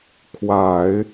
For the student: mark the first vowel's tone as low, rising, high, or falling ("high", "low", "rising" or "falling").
low